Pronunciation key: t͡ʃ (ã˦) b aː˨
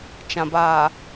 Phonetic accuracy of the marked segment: incorrect: ã˨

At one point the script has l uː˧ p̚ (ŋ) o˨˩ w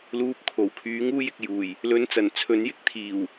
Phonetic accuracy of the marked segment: incorrect: kʰ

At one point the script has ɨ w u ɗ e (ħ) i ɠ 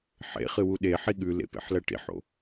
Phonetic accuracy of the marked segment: correct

